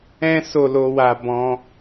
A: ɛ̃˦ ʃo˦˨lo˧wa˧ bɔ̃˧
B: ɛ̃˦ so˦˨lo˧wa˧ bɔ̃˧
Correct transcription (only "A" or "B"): B